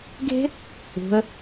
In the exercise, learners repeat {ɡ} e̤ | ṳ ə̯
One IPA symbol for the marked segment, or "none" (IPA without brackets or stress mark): ɡ